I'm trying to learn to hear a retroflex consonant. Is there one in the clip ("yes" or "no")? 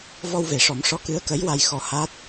yes